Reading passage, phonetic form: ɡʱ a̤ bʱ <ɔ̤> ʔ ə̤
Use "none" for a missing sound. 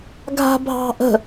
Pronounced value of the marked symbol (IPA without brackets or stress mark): ɑ̤